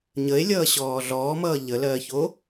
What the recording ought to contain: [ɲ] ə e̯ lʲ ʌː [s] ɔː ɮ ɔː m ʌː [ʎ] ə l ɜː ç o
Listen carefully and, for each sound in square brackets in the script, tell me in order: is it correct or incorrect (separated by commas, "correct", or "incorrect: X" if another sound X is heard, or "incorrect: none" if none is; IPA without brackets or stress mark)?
correct, incorrect: ɕ, correct